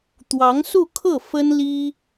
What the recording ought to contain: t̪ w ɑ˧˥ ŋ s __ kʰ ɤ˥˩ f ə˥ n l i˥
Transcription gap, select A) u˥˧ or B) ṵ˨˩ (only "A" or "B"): A